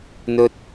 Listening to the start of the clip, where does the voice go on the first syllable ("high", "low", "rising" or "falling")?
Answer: high